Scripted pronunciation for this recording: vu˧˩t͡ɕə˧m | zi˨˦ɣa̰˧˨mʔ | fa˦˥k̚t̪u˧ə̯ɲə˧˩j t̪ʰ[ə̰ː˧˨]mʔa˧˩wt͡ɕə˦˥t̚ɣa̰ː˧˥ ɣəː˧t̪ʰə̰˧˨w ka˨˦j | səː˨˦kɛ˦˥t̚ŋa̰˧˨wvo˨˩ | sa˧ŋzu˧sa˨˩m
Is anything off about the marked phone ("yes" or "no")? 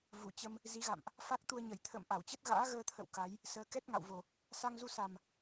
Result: no